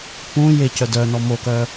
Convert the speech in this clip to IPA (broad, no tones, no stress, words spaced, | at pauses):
pũ jecœ dœnɔ mokœ